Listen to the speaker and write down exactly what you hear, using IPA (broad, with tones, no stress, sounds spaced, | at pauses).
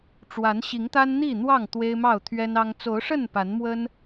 ʈ͡ʂ w a˨˦ n ɕ i˨˦ ŋ t̪ a˦ n n̪ i˥˨ n̪ w ɑ˥˨ ŋ t̪ w e˦ ɪ̯ m ɑ˥˨ ʊ̯ t̪ʰ ɥ ɛ˦ n ɑ˦ ŋ t͡s o˨˦ ʊ̯ ʂ ə˥˨ n p a˨˦ n m w ə˦ n